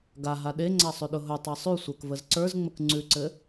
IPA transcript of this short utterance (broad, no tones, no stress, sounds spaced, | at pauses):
ɡ a ɦ a ɗ e ŋ͡ǀ a sˤ ʉ ɗ ʊ ɦ ʊ tˤ a sˤ ʉ sʷ ə˞ k v ə z ǀ ə˞ z ŋ͡m ə k ŋ͡ǀ ʉ ǀ ɘ